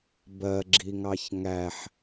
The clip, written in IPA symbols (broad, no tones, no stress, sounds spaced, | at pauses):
b ɜ ɡ͡ǁ i ŋ ɑ ç ŋ æ ħ